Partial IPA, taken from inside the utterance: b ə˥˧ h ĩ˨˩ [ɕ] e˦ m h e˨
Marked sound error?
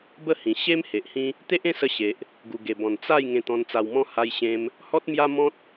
no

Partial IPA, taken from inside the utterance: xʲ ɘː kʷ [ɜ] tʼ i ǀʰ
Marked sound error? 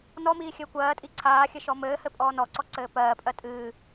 yes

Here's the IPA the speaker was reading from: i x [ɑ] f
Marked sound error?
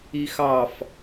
no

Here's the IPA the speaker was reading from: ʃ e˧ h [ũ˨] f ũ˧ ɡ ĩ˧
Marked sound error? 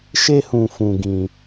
no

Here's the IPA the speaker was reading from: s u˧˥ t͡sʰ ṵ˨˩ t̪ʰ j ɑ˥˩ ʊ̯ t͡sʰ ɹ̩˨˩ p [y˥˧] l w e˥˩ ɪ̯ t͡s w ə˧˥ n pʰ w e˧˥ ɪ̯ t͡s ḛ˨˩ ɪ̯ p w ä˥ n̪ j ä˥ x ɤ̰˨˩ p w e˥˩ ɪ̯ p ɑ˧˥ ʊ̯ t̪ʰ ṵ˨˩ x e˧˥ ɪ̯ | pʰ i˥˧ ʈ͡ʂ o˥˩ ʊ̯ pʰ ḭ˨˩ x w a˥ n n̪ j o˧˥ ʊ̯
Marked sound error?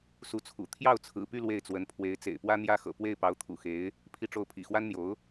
no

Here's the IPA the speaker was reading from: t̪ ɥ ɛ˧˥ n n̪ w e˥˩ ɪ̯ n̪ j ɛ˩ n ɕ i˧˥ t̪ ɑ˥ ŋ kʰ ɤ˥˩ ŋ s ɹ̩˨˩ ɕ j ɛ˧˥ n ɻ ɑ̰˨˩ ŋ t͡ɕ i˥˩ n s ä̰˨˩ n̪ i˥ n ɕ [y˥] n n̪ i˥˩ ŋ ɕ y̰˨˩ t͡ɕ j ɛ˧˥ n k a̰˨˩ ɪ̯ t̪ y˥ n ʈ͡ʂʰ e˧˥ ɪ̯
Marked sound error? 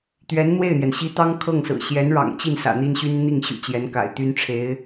no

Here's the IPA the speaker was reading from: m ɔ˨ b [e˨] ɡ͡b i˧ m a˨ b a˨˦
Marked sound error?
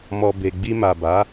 no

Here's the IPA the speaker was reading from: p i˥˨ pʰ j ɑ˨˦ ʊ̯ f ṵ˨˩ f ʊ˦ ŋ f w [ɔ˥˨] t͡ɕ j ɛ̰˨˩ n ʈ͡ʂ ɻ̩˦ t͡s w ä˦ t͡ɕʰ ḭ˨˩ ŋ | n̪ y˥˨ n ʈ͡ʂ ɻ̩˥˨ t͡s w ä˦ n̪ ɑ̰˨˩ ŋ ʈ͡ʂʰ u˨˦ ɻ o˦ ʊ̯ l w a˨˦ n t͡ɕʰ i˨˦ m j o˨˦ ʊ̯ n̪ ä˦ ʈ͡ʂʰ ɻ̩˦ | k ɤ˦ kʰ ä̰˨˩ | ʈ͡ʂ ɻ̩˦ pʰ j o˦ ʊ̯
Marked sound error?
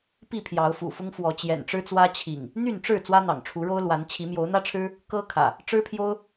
yes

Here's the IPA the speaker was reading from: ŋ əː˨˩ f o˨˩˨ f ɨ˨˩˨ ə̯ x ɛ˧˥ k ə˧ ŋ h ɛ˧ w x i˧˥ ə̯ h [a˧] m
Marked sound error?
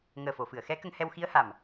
yes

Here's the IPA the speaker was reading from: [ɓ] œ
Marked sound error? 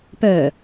yes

